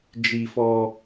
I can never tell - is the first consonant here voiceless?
no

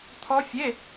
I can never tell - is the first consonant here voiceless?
yes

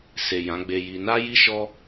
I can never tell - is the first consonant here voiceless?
yes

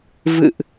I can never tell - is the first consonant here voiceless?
no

